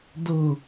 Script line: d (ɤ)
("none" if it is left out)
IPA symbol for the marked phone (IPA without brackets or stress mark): ɤ